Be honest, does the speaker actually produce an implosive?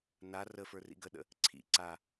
yes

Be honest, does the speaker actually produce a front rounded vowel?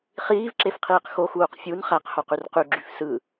yes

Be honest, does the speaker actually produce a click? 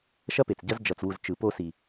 no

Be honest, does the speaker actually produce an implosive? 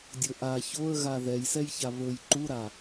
no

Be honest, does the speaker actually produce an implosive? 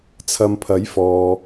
no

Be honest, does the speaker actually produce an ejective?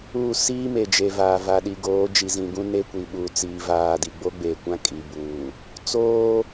yes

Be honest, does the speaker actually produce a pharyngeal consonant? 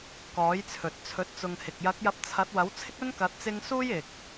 no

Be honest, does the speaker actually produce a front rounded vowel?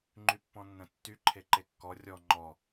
yes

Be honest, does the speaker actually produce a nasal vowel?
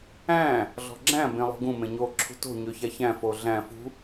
yes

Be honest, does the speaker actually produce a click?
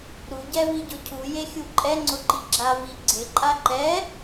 yes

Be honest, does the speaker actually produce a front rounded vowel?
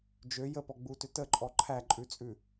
yes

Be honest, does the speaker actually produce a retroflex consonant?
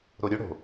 yes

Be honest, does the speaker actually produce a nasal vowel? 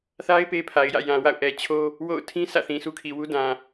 yes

